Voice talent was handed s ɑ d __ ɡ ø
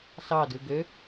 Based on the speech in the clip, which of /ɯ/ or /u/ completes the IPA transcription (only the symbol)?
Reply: ɯ